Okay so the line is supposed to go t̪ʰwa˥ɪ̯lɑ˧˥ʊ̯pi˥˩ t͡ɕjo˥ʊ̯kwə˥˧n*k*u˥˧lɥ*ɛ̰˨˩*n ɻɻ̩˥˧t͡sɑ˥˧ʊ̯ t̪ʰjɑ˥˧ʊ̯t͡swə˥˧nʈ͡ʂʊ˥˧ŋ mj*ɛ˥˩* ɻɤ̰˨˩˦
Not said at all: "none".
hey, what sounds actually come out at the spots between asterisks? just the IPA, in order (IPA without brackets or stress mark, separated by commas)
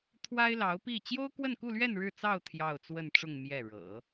k, ɛ˥˧, ɛ˥˩